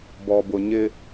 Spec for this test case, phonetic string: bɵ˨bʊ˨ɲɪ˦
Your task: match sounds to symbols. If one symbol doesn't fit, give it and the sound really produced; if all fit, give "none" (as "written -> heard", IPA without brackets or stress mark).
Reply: ɵ˨ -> ɔ˨